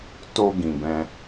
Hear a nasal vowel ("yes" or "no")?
yes